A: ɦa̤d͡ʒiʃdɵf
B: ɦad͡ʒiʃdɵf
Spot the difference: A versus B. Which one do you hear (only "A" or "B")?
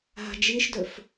A